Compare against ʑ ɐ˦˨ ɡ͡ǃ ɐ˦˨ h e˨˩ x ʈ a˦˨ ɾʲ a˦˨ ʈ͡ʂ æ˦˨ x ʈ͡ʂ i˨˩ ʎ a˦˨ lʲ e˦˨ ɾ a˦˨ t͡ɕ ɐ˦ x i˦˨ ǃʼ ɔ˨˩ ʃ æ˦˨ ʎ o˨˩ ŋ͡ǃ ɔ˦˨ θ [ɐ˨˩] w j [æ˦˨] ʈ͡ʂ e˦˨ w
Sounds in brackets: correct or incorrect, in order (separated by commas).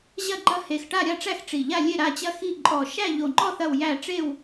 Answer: incorrect, correct